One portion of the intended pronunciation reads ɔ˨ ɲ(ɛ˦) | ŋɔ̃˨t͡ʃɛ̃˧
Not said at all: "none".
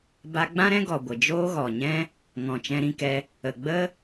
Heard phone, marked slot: ɛ̃˦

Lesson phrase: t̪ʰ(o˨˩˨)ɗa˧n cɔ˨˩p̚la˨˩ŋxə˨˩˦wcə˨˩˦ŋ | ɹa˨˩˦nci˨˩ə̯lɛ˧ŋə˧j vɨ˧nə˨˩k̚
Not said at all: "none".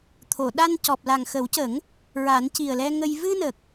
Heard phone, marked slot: o˨˩˨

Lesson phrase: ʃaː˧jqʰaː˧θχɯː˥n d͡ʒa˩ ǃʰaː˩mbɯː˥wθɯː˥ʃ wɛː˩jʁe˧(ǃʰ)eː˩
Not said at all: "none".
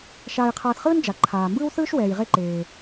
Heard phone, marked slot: ǃ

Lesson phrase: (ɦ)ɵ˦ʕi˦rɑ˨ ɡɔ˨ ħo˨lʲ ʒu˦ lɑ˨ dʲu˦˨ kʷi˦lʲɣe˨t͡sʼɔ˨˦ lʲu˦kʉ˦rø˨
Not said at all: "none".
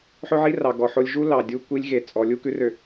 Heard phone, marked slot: ħ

